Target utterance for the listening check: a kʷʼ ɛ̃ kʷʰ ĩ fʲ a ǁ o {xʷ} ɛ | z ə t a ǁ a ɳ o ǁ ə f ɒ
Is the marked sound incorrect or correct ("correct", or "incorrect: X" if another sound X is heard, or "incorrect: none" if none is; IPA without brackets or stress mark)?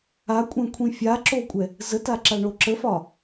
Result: incorrect: kʷʼ